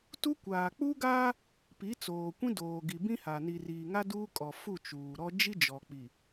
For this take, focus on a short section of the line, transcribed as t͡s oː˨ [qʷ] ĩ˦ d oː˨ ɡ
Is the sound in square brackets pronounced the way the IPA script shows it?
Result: no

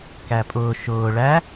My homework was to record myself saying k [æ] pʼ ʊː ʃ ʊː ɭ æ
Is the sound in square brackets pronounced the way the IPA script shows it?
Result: yes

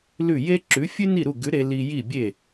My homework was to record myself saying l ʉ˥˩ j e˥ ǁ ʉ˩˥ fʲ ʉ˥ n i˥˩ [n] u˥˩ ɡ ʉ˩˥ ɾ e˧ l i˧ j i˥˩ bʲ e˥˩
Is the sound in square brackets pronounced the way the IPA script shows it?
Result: no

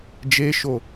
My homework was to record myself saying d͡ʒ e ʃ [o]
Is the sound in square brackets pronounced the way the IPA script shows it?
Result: yes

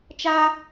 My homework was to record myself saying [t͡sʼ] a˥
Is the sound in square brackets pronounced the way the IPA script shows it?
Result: no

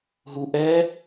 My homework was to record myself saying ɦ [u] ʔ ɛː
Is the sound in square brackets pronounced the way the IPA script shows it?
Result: yes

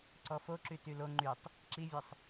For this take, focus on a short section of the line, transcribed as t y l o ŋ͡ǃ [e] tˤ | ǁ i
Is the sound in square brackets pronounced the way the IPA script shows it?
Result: no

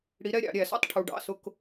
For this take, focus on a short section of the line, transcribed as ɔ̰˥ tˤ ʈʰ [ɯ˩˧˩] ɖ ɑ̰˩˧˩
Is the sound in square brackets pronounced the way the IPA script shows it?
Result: no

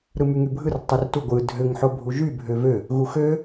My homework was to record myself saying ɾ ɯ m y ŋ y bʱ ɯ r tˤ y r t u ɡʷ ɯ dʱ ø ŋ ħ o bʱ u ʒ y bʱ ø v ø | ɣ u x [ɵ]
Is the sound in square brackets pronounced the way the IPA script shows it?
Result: no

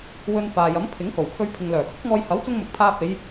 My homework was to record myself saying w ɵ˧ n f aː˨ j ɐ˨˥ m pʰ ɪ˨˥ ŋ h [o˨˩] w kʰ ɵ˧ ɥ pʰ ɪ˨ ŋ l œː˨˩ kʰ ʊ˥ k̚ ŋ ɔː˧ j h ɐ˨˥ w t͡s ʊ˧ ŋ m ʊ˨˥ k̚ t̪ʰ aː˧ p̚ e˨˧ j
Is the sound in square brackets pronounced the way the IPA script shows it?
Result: yes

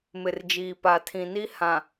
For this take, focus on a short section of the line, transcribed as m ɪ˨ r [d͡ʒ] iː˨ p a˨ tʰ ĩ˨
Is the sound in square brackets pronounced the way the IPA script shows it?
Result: yes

